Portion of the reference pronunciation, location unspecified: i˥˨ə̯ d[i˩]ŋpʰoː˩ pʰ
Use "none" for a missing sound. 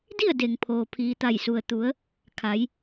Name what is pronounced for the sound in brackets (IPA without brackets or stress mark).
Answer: e˩